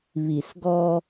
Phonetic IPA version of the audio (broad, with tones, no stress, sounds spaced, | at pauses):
β i˨ s ɡ ɔ˧